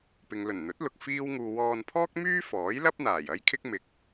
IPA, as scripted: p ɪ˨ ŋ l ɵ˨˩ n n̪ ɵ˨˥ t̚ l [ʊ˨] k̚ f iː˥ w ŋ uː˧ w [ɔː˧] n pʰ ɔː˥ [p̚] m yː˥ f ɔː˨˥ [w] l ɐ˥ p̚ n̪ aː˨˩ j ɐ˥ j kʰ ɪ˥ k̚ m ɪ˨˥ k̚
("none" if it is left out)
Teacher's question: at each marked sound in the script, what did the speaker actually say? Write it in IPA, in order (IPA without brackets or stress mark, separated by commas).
ʊ˨, ɔː˧, k̚, j